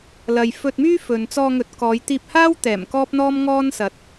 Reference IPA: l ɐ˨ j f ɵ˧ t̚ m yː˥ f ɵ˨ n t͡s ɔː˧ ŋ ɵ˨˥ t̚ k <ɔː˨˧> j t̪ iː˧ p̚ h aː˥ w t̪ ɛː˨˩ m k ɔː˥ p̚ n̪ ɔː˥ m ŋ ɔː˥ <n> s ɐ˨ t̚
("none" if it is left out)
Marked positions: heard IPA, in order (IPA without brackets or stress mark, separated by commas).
ɔː˨˧, n